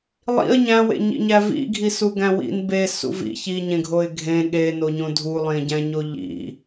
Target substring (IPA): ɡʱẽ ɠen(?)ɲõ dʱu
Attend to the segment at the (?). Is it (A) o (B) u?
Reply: A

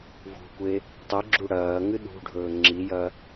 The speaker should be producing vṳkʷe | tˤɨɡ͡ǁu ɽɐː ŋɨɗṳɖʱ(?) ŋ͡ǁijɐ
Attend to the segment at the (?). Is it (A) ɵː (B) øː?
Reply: A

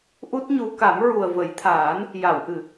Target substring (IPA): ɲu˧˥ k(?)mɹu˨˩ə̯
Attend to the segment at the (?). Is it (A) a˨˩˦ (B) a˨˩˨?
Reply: A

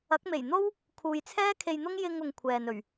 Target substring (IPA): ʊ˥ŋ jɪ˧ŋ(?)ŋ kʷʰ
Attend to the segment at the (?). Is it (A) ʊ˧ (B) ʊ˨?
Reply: B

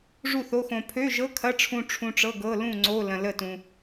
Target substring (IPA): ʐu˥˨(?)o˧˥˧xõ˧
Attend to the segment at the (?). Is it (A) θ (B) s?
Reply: A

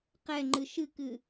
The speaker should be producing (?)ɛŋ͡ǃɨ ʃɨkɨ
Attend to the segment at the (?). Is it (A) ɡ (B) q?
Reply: B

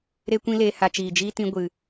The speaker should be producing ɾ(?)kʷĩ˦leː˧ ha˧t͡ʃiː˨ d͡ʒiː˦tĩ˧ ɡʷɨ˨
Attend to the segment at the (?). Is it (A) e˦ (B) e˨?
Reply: A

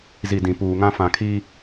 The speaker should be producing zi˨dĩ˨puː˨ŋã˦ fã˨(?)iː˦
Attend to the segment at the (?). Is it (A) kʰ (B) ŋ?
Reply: A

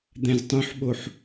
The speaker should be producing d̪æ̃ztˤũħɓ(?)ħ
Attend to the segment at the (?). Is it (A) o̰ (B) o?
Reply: B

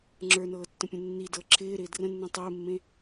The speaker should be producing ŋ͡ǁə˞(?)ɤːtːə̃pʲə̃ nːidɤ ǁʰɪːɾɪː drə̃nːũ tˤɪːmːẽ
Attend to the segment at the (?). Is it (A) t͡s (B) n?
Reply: B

